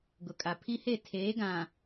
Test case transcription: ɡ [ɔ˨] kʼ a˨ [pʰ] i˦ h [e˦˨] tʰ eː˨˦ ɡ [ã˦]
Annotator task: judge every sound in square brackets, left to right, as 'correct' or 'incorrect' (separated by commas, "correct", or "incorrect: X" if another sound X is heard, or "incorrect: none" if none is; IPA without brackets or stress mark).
incorrect: ʊ˨, correct, correct, incorrect: ã˨